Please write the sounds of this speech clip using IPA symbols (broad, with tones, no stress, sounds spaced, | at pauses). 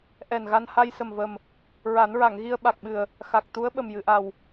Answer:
ʔ ɛ˨˩ n ɣ a˧ n h a˧ j s ə˨˩ m v ə˨˩ m | ɹ a˨˩˦ n ɹ a˨˩˨ ŋ ɣ i˧ ə̯ ɓ a˨˩ k̚ ɓ ɨ˨˩ ə̯ | x a˨˩ k̚ t̪ u˧˥ ə̯ ɓ ə˨˩ m j ɨ˨˩˨ ʔ a˨˩ w